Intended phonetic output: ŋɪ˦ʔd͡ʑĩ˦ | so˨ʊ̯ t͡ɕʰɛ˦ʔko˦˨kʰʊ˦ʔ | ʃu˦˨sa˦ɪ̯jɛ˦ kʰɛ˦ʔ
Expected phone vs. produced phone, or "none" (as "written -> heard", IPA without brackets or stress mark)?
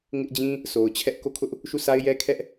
none